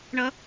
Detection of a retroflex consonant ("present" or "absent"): present